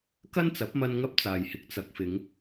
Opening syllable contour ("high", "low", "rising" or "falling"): high